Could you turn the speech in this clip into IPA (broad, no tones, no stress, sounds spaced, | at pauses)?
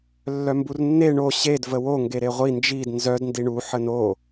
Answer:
lː œ m b u r nː e ɳ o ɕ e d v ə w o ŋ ɡ e ɾ e ʁʷ i n d͡ʒ i d n z œ d n d i ɳ u ħ ə n o